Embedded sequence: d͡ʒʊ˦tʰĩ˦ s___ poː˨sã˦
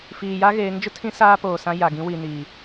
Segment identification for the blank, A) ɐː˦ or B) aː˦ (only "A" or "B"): B